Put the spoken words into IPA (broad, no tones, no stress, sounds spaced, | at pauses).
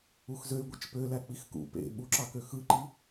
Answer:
u x z ø y̯ ɡʷ e t͡ʃ p ø l æ k͡p i x k ṵ p ḛ ɓ u ǁ ɑ k ø x ɯ ǃ i